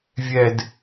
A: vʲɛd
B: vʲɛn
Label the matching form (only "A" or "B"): A